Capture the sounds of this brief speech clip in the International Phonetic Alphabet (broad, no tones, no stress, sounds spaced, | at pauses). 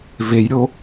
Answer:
v e j ɾʲ o